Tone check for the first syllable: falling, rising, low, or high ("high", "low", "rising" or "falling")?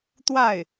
falling